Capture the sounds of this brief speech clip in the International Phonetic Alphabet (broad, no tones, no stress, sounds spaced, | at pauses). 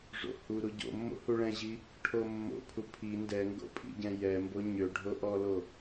ʐ o̰ h u ɾ u ɟ o̰ mː o̰ h u ɭ ɛ̃ ʑ i | ʈʰ o mː o̰ pʰ u pʰ i n d ɛ ŋ ɡ o̰ pʼ ḭ ɟ ɛ̃ j ɛ m b o ɲ ø ɖʱ o ʔ ɔ l o